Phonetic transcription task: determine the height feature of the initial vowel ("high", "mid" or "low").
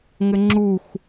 mid